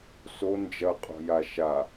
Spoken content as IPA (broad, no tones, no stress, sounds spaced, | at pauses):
s o n d͡ʒ ɐ qʼ o̤ j a ʃ a